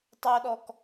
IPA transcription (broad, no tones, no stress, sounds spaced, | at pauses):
tˤ o ɗ ɔ k